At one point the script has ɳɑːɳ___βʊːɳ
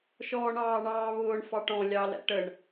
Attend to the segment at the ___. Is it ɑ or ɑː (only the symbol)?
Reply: ɑː